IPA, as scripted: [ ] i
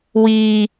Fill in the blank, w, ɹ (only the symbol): w